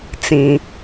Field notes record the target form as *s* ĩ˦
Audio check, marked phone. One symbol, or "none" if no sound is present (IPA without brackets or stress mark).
t͡s